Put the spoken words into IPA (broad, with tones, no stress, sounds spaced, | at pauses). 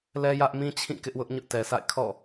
l ɛ˦ j ä˦ ʔ m ĩ˦ t͡ɕʰ ĩ˦˨ k ɪ˦ ʔ w ʊ˦ ʔ ɲ ʊ˦ ʔ t ɛ˨ s a̰˦˨ ɪ̯ kʰ ɔ̰˦˨